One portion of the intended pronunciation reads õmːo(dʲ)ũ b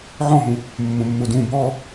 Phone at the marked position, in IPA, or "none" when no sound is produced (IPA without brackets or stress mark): d